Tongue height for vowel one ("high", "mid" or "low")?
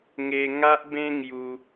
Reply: mid